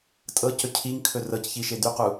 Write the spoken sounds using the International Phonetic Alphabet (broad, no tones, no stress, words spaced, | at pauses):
tʼɤcɵ cʰiŋkʰɵ rɤcçiʃe d̪yqu